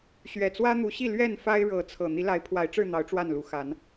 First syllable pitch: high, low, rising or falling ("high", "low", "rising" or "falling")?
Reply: low